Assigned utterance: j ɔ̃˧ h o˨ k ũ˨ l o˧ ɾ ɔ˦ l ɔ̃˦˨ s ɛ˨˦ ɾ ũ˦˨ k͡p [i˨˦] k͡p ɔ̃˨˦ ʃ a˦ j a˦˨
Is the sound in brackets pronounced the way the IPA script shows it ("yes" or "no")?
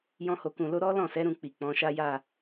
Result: no